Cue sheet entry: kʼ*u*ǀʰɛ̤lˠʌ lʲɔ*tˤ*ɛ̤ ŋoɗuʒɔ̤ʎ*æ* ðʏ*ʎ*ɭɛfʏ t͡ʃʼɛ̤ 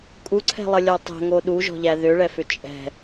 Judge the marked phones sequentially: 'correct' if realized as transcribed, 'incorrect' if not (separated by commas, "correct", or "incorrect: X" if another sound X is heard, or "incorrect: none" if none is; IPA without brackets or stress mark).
correct, correct, correct, incorrect: none